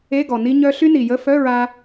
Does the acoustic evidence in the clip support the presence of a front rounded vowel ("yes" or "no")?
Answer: yes